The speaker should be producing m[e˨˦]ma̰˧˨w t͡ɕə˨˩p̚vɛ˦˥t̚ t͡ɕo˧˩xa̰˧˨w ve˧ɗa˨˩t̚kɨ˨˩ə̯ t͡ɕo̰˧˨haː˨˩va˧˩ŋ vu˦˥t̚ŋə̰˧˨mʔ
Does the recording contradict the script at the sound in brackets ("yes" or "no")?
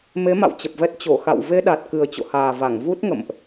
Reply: no